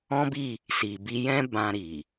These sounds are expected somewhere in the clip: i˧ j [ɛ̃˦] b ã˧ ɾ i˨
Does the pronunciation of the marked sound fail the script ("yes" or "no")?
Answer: no